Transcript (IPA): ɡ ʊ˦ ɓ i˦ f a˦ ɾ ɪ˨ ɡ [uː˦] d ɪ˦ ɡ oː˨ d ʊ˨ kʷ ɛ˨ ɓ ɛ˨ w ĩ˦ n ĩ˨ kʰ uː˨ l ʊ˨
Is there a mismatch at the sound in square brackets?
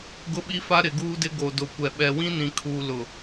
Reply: no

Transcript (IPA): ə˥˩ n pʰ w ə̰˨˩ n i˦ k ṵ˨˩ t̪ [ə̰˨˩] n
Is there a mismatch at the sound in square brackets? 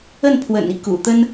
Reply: yes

